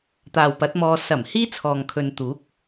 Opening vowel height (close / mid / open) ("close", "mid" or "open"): open